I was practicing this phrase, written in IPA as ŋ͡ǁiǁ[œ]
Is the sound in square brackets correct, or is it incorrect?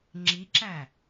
incorrect